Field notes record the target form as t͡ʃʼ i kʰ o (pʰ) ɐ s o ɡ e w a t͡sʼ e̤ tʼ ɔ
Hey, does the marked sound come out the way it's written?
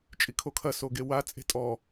no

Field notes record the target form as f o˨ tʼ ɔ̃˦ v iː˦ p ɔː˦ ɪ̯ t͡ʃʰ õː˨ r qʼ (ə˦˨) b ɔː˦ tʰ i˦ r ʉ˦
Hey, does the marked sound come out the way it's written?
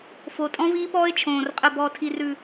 yes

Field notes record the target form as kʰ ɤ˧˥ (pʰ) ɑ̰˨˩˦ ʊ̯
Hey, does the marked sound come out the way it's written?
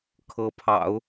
yes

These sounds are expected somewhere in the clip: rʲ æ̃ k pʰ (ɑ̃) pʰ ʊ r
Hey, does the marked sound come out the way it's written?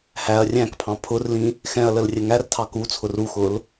yes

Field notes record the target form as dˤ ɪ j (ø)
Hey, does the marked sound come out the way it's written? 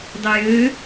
yes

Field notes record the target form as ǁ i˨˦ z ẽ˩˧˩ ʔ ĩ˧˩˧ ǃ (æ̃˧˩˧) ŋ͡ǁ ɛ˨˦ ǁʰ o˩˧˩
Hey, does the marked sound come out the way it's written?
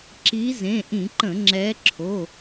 no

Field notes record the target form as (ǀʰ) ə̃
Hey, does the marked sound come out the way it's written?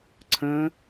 yes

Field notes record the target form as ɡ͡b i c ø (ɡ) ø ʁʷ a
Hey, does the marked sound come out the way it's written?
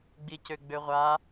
no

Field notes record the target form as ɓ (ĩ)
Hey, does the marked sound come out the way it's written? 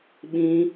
yes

